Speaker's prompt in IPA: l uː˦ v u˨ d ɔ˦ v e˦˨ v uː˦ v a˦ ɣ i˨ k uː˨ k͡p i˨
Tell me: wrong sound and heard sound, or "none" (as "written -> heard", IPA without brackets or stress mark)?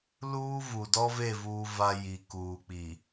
ɣ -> j